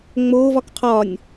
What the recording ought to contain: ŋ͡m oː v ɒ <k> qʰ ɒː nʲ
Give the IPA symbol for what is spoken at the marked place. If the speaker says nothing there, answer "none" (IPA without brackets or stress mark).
k